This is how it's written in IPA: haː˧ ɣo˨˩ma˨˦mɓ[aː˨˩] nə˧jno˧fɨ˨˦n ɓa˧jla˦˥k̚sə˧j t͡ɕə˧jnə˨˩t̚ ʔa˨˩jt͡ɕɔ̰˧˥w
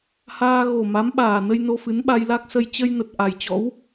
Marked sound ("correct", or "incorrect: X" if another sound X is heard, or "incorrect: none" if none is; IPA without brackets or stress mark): correct